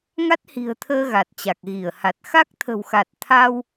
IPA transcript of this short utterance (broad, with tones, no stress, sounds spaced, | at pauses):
ŋ a˦˥ t̚ h i̤˨˩ ə̯ t̪ʰ əː˧ ɣ a˨˩ t̚ t͡ɕ a˨˩ k̚ ɣ i˧˩ ə̯ h a˨˩ t̚ x a˦˥ k̚ t̪ʰ ə̤˨˩ w x a˨˩ t̚ t̪ʰ a˧ w